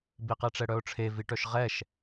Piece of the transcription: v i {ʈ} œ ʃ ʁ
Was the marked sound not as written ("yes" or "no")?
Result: no